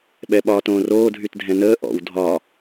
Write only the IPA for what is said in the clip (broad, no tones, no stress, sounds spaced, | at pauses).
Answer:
ɓ ɛ ɓ ɒː t õː r oː dʱ y t dʱ ɛ̃ n əː ʔ ɔ̰ w dʱ ɒː